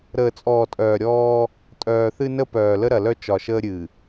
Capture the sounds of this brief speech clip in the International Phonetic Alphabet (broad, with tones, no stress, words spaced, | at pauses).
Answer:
ɾəː˨t͡sʼɔː˨tʼœː˨ ɾʲɔː˦ | tʼœː˨θɨ˦nə˦pœː˨ lə˦ɾɐ˨lœ˦ t͡ʃɒ˨ʃəː˦ ɾʲɨ˨